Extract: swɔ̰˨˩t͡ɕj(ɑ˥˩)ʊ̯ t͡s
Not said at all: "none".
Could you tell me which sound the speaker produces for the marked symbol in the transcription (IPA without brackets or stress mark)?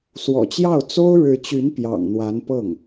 ɑ˥˩